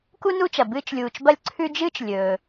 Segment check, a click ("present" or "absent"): present